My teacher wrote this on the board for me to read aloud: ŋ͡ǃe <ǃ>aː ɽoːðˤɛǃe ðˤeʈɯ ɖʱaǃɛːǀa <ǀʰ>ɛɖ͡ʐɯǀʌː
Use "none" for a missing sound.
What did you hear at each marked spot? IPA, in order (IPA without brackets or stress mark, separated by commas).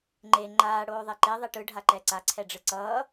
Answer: ŋ͡ǃ, ǀʰ